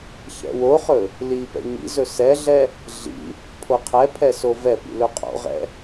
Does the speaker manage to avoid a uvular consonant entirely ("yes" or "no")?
no